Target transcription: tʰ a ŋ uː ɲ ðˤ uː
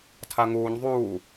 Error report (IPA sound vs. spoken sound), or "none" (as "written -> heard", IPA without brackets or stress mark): none